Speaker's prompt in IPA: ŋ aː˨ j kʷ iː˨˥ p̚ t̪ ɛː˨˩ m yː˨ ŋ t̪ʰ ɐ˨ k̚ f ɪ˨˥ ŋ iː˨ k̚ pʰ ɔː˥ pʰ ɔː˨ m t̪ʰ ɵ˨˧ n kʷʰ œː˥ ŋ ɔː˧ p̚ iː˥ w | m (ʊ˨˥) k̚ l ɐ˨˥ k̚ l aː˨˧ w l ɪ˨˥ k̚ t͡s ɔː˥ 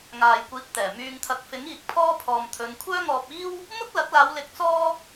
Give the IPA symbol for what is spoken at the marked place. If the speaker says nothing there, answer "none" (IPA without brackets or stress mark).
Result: ʊ˥